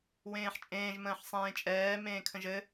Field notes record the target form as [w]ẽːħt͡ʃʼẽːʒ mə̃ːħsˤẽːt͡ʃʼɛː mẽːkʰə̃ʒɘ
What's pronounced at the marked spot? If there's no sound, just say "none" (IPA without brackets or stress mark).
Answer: w